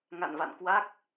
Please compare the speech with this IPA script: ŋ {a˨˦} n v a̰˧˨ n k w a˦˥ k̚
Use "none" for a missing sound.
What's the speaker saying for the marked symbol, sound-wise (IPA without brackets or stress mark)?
a̰˧˨